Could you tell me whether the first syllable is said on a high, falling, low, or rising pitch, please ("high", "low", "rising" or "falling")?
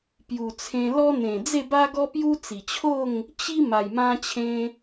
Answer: low